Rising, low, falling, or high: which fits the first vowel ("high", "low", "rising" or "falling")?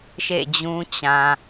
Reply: falling